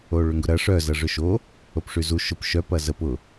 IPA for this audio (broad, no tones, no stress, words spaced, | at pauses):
oɭʏŋɡʊɾɐ ʂœ zɐʐʏʃo | opʂyzu ʃʊp ʃœp ɐzəp ʊ